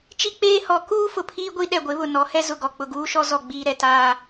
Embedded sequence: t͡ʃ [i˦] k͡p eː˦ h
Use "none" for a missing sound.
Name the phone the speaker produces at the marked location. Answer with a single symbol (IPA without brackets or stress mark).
i˦